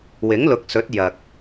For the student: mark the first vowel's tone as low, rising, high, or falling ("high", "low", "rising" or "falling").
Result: rising